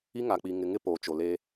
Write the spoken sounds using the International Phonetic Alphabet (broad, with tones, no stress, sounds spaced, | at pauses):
i˦ ŋ a˨ k͡p i˨ ŋ ɪ˨ ŋ ɪ˦ p oː˨ t͡ʃ o˨ l eː˦